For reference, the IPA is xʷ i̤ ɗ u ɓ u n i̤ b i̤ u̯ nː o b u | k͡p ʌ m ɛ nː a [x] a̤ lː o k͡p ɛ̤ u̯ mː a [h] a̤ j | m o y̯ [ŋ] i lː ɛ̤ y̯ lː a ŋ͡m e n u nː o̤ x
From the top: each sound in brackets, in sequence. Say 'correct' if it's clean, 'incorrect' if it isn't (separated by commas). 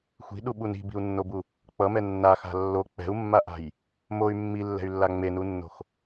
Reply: correct, incorrect, incorrect